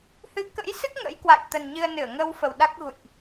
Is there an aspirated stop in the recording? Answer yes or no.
no